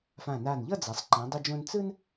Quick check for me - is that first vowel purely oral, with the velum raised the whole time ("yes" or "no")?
no